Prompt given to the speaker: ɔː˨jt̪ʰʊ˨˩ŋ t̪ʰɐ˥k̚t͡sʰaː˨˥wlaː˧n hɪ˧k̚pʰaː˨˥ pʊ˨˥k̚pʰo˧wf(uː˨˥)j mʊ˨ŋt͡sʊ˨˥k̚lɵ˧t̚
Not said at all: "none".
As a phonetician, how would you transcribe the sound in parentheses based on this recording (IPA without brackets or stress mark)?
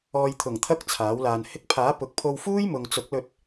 uː˥